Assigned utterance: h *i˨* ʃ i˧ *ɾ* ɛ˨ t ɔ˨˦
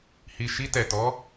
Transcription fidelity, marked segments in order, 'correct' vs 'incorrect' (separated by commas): correct, incorrect